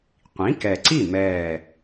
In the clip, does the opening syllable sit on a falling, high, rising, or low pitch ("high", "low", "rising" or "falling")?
rising